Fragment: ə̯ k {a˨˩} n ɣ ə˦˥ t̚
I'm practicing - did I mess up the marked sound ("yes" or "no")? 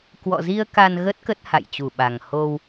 yes